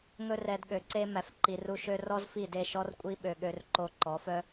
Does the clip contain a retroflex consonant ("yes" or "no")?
no